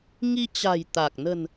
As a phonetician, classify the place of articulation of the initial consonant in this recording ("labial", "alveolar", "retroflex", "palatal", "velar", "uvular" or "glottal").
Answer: velar